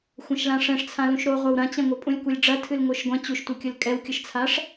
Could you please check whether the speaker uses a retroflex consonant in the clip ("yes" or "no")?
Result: yes